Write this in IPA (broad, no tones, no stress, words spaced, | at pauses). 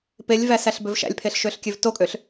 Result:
pelʲvæsæɬbøv ʃæ̰lʲpʰeɬʃøɬkʲøv tokʼøɬ